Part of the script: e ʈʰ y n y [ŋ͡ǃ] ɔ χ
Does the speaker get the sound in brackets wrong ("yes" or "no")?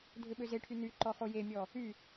yes